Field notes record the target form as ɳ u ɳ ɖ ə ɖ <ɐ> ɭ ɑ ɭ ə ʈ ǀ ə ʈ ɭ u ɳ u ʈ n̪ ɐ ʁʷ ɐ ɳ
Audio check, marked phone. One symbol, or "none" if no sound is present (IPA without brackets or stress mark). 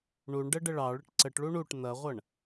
ə